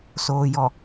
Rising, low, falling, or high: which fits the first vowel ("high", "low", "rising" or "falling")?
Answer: low